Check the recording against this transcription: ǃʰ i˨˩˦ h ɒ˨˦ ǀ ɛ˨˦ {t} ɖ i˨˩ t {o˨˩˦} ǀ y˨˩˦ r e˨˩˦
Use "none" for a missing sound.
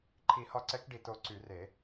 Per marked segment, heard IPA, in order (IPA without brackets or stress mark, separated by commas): k, o˨˩˦